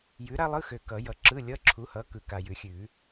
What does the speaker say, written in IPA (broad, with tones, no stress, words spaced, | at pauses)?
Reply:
jʉ˨˥ ɾa˥lˠɯ˧˥˧xø˨ kʌ˨˩˦jʌ˨˥ ǁɯ˧˥˧lʲʌ˧˥˧ǁʰu˨˥hʌ˨˥ kɯ˨ka˨jʉ˨˩˦xʲʉ˨˩˦